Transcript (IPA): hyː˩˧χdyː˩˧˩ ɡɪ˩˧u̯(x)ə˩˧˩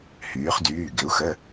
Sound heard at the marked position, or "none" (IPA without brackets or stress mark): x